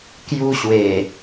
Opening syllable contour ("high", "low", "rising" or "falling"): high